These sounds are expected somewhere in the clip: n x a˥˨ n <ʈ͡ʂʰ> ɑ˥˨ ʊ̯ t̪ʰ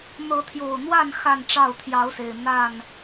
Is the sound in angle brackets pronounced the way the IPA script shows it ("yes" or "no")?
no